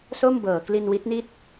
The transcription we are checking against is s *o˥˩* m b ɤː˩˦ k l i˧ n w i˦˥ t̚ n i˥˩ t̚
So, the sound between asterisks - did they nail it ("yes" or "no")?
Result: yes